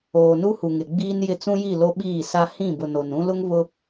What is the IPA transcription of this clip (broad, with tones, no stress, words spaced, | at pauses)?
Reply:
oː˨nu˦hu˨ ŋɪ˨ɡ͡biː˦njɪ˦˨ t͡sũ˦ji˦˨ lo˦ɓiː˦˨sa˦ hĩ˦˨bʊ˨ no˨nũ˦ lʊ˦ŋβʊ˦